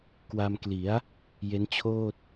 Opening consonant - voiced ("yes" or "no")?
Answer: no